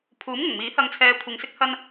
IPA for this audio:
pʰ uː˨˥ m ŋ ʊ˨˩ ŋ m iː˨˥ h ɐ˧ ŋ t͡sʰ ɛː˧ kʷʰ ɪ˨˧ ŋ s ɪ˥ k̚ h ɐ˥ n

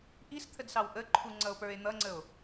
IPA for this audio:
ʔ i s t̪ʰ ə d s ɑ w ʔ ə ǃʰ u ŋ͡ǀ ʌ o̯ p ə˞ e̯ n̪ ʌ ŋ͡ǀ ə o̯

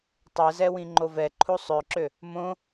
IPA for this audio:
tˤ ɛ z ɛ w ĩ ŋ͡ǃ o v ɛ ǃʰ u sˤ ø ǁ ø | m õ

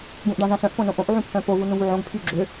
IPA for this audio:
ɡ ũ ʔ ɖ ã z ã s œ̃ ʔ p õ n õ ʔ õ ʔ ʕ ũ pʰ œ̃ p o v u n ũ v u ʕ õ ɡ pʰ y ɡ͡ǁ ø

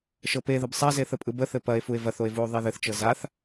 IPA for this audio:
ʃ ɤ p e ð ə b sˤ a z e θ ə pʼ ɯ b ə θ ɘ p ɐ e̯ f u e̯ v ɐ θ o e̯ v u o̯ ðˤ e ð ɘ θ t͡ʃ ɤ z a θ

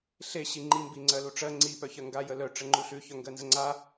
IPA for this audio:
ɬ e ɕ i ŋ͡ǃ i m b i ŋ͡ǀ ɜ l u ʈ͡ʂ ɜ ŋ͡ǀ i p œ ç ɜ ŋ ɡ a j ə l œ ʈ͡ʂ ə ŋ͡ǃ u ɬ ʉ ç œ ŋ ɡ ɜ n z ə ŋ͡ǀ a

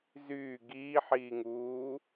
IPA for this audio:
z yː ɡ iː ħ iː ŋ uː

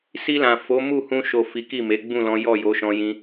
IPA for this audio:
s i˧ l ã˨ f o˨˦ m u˦˨ h ũ˧ ʃ o˨ f i˨˦ k i˦˨ m e˨˦ ɡ͡b ũ˦˨ l ɔ̃˨˦ j ɔ˦˨ j o˨˦ ʃ ɔ̃˧ j ĩ˧

